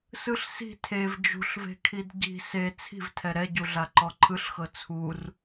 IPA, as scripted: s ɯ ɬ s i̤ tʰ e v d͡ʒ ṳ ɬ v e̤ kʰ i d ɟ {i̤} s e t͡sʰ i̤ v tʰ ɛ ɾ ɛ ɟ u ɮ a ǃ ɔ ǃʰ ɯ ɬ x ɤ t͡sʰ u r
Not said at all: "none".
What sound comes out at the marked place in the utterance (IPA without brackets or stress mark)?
i̤